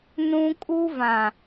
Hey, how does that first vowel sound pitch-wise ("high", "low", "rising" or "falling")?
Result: high